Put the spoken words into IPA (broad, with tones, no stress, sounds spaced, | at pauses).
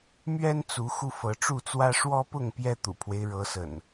m ɥ ɛ˦ n t͡s u˨˦ x u˧ f ɤ˨˦ ʈ͡ʂ u˥˨ t͡s w ä˦ ʂ w ɔ˦ p ʊ˥˨ ŋ p j ɛ˦ t̪ ṵ˨˩ pʰ w e˦ ɪ̯ ɻ ɤ˨˦ s ə̰˨˩ n